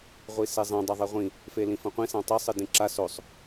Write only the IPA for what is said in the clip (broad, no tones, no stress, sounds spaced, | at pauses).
ʁʷ i s e zˤ ẽ dˤ ɐ ðˤ e ʁʷ ĩ | f e l ĩ f ɐ̃ qʷ ĩ s ã tˤ i sˤ ɨ d ĩ ǁ a s o sˤ